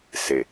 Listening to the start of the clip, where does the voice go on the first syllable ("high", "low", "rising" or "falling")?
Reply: low